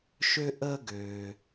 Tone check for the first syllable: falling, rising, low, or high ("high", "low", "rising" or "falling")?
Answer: high